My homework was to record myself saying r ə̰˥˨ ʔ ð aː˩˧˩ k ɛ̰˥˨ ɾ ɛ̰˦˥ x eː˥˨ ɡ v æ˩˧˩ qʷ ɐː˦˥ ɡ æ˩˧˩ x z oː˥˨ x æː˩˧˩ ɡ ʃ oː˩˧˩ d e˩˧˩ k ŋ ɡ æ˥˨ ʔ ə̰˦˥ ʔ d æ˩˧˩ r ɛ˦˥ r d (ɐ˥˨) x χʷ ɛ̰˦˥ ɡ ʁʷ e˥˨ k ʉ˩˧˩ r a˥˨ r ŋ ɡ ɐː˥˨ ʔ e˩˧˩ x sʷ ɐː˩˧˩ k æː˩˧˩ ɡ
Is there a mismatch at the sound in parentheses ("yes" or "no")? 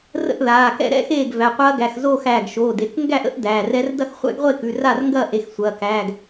no